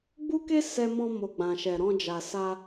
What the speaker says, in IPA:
ɡ͡b u˦ k e˦ s ɛ˧ m ɔ̃˧ m o˨ ɡ͡b ã˨ ʃ ɛ˨ ɾ ɔ̃˧ d͡ʒ a˨ s a˧

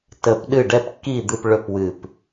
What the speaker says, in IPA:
t ə˨˩˦ p ɗ ɨ˧˩ ɖ ɛ˧˩ p kː i˧˩ d̪ ɨ˧˩ p ɭ ɵ˧˩ p w ɨ˧˩ p

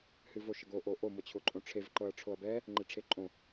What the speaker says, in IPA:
h ɨ v o ʃ ə ɡ o ʔ o ʔ o m ɤ t͡ɕʰ ʊ ǃʼ õ ʈ͡ʂʰ e v ǃ ɤ ɐ̯ ʈ͡ʂʰ o ɐ̯ b ɛ | ŋ͡ǃ e ʈ͡ʂʰ e ǃʼ õ

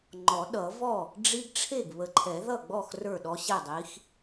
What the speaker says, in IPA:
ŋ͡ǃ ɔ˨˩˦ ɗ ʌ˨˩˦ v ɔ˥˩ | ɖ͡ʐ i˦ ɡ ʈ͡ʂʰ e˥˩ ɡ β ə˨ ǃʰ ɛ˨˩˦ ð ʌ˥˩ ɡ͡b ɔ˥˩ x r ə˞˥˩ ɗ ɔ˦ ɕ ɛ˥˩ dˤ i˨˥ x

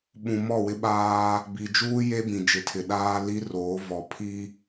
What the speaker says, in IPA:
ɓ ũ˨ m ɔ˦˨ w ɪ˦ ɓ aː˦ | b i˨ d͡ʒ uː˦ j e˦ b ĩ˨ d͡ʒ ɪ˨ tʰ ɪ˨ ɗ aː˦ l i˦ r oː˨˦ v ɔ˨ pʰ i˦

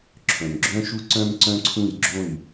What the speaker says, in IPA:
ǁʰ œ̃˨ m ɡ͡ǁ œ̃˦ ʃ u˦ ǀ œ̃˦ m ǀ œ̃˦ ǀʰ ũ˦˨ j ɡ͡ǁ õ˦˨ j

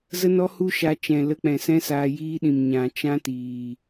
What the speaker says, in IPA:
z ə˦ n ɔ˦ h u˦ ʃ a˧ t͡ʃ ɛ̃˨ l ə˧ k͡p ɛ̃˨ s ɛ̃˦ s aː˧ j iː˦ ɗ ĩ˨ m ɲ ã˨ t͡ʃ ã˦ t iː˨

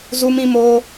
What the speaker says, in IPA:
z u˦ m ĩ˦ m oː˦

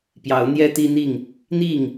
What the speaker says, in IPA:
p j ɑ˨˦ ʊ̯ n̪ j ɛ˦ t̪ i˦ n̪ i˥˨ ŋ | n̪ i˥˨ ŋ

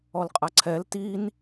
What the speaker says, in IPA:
ɔ l qʼ a ǀʰ ɛ l t i n

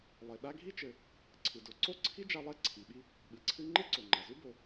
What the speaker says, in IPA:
lˠ e˩ ɗ a˥ ɡʱ i˥ t͡ʃ ɘ˩ | ǀʰ ɨ˩ d o˩ ǀ o˥ ǀʰ i˥ d͡ʒ a˥ lˠ ɛ˥ ǀʰ i˩ ɓ i˥ | ɓ ɨ˩ ǀʰ ɨ˥ ŋ͡ǃ e˥ ǀ o˩ ŋ͡ǃ a˩ z u˥ b o˩

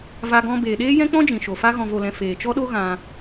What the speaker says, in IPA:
v a˧ ɡ ɔ̃˧ b eː˨ ɗ eː˦ j ɛ̃˦ k͡p ɔ̃˦ d͡ʒ ĩ˨ ʃ o˨ f a˦ ɣ ɔ̃˧ v o˧ l ɛ̃˧ f eː˨ t͡ʃ ɔ˦ ɗ o˦ ɣ ã˧

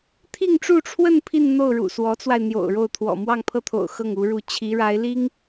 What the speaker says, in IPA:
t̪ʰ i˥˧ ŋ ʈ͡ʂ u˥˧ ʈ͡ʂʰ w ə˥˧ n pʰ i˥˧ n n̪ o˥˩ ʊ̯ ɻ ṵ˨˩ s w ɔ˧˥ t͡s w a˧ ɪ̯ n̪ j o̰˨˩ ʊ̯ ɻ o˥˩ ʊ̯ t̪ʰ w ɔ̰˨˩ m w ɑ˥˧ ŋ pʰ ɤ˥˩ t̪ʰ o̰˨˩ ʊ̯ x ɤ˥˩ ŋ u˧˥ ɻ u˥˩ t͡ɕʰ i˧˥ ɻ a˧˥ ɪ̯ l i˥ ŋ

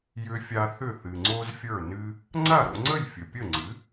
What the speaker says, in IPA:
j ʏ˧ fʲ a˧ θ ʏ˥˩ θ ɨ˩ ŋ͡ǀ o˥ z fʲ ə˞˥˩ n ɨ˥ | ŋ͡ǀ a˥˩ ɾ o̰˧ ŋ͡ǀ ə˥˩ j fʲ ə˩ pʲ ə˥˩ ŋ͡ǀ ɨ˩˥

